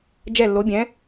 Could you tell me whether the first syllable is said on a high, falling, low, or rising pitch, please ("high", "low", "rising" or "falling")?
falling